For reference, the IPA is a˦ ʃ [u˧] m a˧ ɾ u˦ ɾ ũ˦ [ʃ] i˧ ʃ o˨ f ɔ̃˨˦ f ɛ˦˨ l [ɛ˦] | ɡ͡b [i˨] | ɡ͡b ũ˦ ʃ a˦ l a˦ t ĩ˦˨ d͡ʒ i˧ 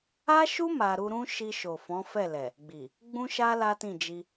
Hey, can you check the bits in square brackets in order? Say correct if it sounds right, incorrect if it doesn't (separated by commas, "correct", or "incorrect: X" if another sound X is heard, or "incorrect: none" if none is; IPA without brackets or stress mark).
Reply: incorrect: u˦, correct, incorrect: ɛ˨, correct